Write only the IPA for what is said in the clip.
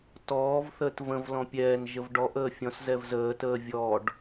t ɔː v θ əː t v ə̃ v l ɔ̃ pʲ ɛː n ʒ ə v ɖ ɔ ʔ əː fʲ ɔ̃ s z ɛ v z əː t əː vʲ ɔ ɖ

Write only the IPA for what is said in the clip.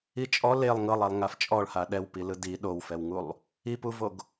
i t͡ʃʼ ɔ l e lˠ ŋ ɤ lˠ a lˠ ŋ a f t͡ʃʼ ɔ ɭ h a ɗ ɛ w p i l ɯ d i ɗ o w f ɛ w ŋ u lˠ | i p u v o ɡ

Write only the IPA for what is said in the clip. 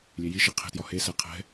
lʲ e j i ʃ i qʰ e̤ t j ɒ h e s ɛ qʰ ɛ̤

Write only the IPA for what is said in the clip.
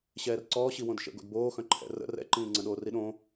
ɕ ɛː r ǀ ɔː ɕ i w õ d ʃ ə̰ ɡ o̰ d b oː x œ̃ ǃʰ ɛ̰ r ə̰ r ɛ̰ ǃ ĩː ŋ͡ǀ ə̃ ɗ oː r i ɗ õ

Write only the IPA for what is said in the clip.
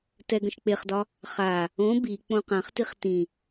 t ɛ ɡ ə̃ ʃ k͡p e χ d ɒ | χ a | õ b i k͡p õ q ã χ t i χ t ĩ

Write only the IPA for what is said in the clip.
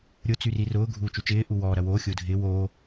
ɾʲ ʊ t͡s y r i r ʊː ɡʱ uː t͡ʃ u t͡ʃ ɪː ʔ u w ɔː ɾ ɐ w oː xʲ ʊː dʱ ɪː w oː

